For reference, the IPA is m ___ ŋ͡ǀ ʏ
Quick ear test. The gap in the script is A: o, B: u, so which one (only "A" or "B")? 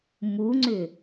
B